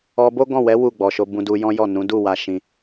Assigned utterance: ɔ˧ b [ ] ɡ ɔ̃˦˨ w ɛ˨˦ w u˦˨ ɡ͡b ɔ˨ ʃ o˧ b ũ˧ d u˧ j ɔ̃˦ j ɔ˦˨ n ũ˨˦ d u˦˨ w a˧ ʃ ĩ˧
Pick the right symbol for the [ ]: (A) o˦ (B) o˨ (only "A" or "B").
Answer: A